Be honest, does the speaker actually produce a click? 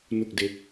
no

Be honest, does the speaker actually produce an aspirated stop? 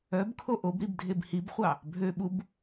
yes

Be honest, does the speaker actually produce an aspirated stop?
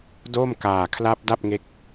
yes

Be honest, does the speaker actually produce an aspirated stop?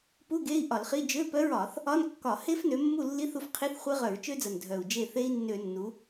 yes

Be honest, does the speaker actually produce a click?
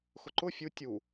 yes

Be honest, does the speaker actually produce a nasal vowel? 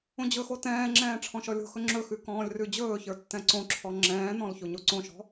yes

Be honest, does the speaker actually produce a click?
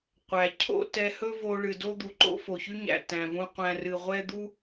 yes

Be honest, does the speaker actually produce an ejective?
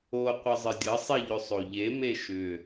no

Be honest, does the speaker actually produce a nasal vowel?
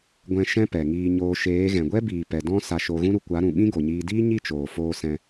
yes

